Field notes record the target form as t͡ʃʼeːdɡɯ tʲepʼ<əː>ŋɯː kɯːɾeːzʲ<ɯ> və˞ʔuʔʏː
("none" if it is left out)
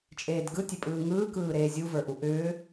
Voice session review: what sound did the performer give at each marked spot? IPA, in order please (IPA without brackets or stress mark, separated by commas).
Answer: ɯː, u